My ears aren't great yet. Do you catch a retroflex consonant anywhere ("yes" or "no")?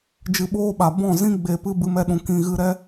no